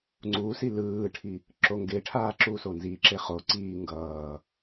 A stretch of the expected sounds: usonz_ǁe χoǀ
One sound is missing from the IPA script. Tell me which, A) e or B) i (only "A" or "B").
B